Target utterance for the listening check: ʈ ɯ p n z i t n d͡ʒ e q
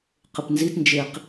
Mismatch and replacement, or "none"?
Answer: ʈ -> q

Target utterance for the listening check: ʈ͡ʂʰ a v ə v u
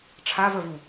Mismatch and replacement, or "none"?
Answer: none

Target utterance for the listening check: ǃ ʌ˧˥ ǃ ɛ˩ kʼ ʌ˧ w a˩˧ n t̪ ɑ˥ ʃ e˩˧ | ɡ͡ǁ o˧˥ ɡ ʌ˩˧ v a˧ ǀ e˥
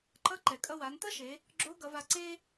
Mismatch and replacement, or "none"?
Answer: ɑ˥ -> ʌ˥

